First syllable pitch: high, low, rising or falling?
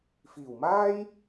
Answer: low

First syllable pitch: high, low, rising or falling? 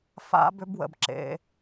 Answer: high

